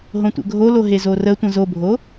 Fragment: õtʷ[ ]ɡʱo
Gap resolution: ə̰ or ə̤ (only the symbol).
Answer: ə̰